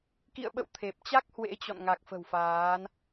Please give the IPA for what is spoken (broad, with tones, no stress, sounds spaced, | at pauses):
k ḭ˧˨ ə̯ ɓ ə̰˧˨ w t̪ʰ e˨˩ p̚ t͡ɕ a˦˥ k̚ h w ḛ˧˥ t͡ɕ ɔ̰˧˨ n ŋ a˨˩ k̚ f ə̤˨˩ w f aː˨˦ n